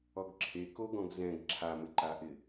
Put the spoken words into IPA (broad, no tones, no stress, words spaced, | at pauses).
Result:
ɔɡǁʰe koɡɔ̃ɡzɛ̃ɡ ǁʰamɪǃaʔɪ